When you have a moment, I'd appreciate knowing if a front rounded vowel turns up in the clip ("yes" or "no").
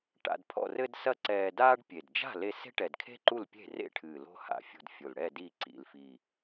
no